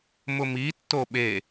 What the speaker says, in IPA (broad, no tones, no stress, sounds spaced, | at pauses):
m ʊ m i tː o ɓ e